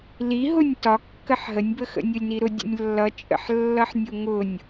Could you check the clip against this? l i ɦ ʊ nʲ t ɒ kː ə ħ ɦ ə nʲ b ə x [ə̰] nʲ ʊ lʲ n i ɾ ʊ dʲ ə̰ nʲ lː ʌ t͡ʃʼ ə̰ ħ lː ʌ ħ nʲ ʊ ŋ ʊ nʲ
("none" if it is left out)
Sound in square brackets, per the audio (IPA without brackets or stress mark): ə̰